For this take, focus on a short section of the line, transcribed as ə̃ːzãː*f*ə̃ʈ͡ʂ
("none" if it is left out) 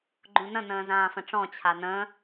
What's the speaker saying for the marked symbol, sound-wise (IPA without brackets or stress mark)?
f